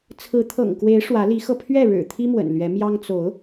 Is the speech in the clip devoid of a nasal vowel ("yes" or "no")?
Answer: yes